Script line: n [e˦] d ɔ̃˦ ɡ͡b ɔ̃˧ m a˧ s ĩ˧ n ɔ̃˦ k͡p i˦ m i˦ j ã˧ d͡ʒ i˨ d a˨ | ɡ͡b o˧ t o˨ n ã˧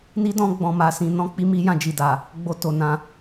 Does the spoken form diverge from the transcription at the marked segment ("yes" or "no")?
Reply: yes